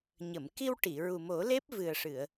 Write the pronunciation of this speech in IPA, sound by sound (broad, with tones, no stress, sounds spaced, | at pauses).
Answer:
ɲ ə˨˩˨ m k i˧ w ʈ i˨˩˨ ɹ u˨˩ m o˨˩˦ l e˦˥ p̚ v ɨ˨˩ ə̯ ʂ ɨ˨˩˨ ə̯